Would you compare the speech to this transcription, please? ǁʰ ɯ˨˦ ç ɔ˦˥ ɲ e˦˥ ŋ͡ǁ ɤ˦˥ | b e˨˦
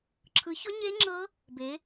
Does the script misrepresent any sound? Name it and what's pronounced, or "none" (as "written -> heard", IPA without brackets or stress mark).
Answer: none